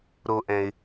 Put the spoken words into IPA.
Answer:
ɾo˨ʔɛ̃˩ɪ̯

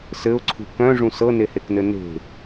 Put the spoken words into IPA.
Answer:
sɘʊ̯ǀʰṳ kœ̃ʐũ sɤneheknɘ ne̤

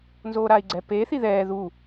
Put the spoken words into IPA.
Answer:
nzoːɾaːi̯ɡ͡ǀɛ pe θiðɛː ðu

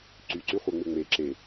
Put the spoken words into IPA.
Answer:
ǀy ǀyχʷeŋ͡mɪŋ͡me ǁe

